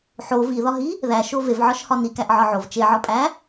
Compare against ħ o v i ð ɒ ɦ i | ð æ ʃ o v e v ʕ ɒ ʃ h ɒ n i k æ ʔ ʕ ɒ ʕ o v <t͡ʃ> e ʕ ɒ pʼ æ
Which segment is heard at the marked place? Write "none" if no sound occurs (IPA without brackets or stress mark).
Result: t͡ʃ